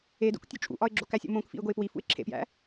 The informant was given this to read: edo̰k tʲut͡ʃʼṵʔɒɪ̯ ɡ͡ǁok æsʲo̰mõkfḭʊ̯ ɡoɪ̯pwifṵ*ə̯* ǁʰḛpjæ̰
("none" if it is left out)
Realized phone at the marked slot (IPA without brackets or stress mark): ɪ̯